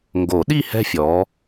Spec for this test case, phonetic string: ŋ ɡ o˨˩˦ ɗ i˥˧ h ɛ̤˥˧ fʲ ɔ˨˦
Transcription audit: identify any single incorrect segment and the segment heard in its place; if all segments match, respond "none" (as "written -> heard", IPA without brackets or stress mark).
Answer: none